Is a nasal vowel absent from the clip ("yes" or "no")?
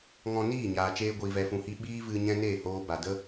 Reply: no